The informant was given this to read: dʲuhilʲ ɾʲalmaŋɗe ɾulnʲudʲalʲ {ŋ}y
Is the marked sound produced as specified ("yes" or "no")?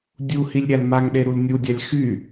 no